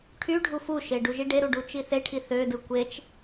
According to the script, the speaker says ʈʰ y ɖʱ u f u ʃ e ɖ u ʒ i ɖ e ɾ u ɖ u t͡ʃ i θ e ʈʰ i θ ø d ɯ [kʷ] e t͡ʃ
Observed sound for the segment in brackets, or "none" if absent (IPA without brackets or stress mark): kʷ